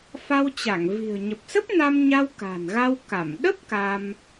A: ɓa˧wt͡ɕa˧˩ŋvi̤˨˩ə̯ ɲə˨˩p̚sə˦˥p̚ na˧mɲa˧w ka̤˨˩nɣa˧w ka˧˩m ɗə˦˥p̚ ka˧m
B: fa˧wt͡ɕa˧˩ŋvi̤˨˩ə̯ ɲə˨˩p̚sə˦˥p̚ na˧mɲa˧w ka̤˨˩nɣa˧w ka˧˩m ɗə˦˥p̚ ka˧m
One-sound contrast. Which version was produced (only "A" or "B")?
B